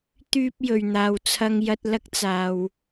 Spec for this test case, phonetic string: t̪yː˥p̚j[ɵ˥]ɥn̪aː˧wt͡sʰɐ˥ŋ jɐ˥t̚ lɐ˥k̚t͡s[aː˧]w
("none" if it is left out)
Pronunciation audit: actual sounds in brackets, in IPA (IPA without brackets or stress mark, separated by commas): ɵ˨, aː˨